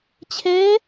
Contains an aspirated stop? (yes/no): yes